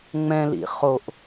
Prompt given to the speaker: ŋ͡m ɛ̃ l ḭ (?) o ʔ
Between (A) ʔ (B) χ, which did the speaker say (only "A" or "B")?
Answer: B